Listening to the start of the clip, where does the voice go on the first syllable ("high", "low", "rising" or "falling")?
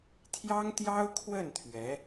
high